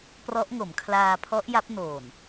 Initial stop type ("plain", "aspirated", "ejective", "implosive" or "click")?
plain